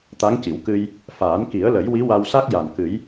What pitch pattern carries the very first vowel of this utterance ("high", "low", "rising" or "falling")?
rising